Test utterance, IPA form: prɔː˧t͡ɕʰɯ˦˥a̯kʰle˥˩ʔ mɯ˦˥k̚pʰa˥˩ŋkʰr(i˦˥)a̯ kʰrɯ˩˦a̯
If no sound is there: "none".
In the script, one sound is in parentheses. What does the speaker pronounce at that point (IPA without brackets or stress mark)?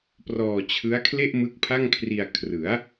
i˧